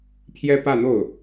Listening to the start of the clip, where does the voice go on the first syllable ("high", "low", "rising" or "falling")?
high